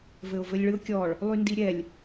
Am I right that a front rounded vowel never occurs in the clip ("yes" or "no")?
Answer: no